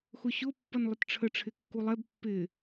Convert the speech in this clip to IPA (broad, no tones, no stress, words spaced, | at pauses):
xʊɕʊ pːʌnlˠətʈ͡ʂʰə ʈ͡ʂʰɪkːulˠɛb pːɪ